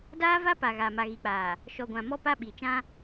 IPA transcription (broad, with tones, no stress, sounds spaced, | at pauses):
d aː˦ v a˦ p a˨ ɣ a˨ m a˨ ɣ i˨ k͡p aː˨ | ʃ ɔ˨ ɡʷ ã˨ m ɔ˦ p a˦ ɓ i˨ t͡ʃ ã˦